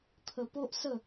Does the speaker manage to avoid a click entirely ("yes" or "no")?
yes